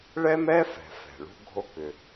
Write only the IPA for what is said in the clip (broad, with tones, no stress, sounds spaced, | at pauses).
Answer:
ɭ ɛ˥ m ɛ˥ f ɛ̤˩ f ɛ̤˩ ɭ ṳ˥ ɡʱ o˥ k ʏ˩